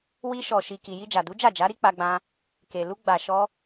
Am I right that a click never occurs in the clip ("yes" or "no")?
yes